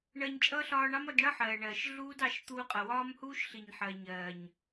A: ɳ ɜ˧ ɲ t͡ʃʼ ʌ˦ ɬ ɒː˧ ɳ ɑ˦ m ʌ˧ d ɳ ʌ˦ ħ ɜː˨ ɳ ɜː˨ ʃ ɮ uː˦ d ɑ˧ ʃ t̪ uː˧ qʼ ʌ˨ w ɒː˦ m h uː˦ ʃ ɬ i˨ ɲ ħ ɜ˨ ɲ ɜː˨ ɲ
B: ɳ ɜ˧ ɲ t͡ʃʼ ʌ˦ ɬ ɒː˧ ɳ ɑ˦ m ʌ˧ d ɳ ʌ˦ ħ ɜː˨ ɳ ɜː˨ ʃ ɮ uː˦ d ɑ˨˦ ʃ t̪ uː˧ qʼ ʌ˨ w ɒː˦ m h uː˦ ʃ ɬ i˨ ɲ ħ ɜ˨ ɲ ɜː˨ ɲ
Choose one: B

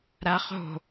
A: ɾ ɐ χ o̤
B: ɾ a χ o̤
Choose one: B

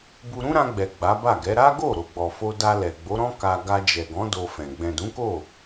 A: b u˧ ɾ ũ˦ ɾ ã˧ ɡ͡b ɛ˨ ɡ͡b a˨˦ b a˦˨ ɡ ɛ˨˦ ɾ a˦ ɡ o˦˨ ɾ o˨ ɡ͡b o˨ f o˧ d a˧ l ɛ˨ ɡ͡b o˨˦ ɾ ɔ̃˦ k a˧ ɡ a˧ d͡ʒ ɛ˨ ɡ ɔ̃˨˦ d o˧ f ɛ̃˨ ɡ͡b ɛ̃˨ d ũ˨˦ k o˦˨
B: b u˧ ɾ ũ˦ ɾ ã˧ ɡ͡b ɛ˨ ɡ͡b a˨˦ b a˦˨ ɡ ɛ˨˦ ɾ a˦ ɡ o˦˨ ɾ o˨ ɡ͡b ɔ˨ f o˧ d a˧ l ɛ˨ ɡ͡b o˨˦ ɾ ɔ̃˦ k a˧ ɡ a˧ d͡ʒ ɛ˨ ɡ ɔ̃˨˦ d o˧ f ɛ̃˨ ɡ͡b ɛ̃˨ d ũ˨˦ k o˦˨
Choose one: B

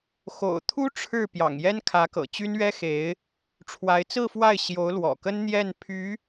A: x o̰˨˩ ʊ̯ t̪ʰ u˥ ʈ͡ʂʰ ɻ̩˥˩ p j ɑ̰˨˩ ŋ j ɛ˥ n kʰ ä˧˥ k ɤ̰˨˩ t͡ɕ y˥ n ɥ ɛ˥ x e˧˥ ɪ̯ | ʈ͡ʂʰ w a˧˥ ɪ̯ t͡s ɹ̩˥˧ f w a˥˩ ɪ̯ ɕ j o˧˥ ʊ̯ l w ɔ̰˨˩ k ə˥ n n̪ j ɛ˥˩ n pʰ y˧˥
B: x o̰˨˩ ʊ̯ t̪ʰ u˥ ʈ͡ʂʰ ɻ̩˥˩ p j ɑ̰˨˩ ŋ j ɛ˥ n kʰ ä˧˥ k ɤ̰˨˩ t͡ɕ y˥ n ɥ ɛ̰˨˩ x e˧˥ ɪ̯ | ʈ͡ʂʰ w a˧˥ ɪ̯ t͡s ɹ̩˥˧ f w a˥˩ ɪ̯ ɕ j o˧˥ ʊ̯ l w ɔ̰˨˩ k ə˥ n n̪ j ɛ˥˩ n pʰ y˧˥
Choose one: A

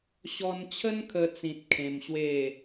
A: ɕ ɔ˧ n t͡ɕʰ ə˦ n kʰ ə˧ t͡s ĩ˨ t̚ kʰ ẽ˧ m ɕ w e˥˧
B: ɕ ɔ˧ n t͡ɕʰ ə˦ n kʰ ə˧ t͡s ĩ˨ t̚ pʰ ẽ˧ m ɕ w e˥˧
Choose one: A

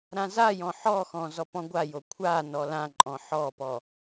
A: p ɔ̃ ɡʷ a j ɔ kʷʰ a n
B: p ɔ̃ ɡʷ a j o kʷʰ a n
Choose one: B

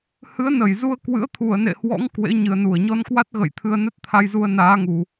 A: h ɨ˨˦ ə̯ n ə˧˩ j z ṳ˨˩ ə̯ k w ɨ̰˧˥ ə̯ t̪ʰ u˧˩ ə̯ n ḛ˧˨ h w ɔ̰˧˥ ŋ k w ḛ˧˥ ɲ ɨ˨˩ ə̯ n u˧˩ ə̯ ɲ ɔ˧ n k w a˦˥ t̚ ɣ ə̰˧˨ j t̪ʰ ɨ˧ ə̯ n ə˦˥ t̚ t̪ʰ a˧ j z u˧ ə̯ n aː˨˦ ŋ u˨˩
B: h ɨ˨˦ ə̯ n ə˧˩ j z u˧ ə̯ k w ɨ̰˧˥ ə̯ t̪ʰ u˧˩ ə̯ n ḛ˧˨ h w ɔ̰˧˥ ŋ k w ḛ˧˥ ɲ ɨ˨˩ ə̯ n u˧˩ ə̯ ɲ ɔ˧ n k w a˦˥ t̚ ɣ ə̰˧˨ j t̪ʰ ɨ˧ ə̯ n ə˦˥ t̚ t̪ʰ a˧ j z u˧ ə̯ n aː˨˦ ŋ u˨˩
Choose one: B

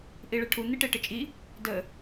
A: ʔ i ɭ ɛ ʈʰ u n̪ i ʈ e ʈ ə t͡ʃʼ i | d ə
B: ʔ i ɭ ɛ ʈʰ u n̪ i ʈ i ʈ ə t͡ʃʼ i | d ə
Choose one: A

